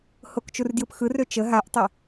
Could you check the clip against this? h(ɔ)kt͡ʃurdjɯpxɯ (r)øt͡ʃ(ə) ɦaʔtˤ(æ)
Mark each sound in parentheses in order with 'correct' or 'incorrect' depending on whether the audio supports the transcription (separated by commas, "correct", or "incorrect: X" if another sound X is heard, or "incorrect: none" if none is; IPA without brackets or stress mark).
incorrect: o, correct, correct, incorrect: ɛ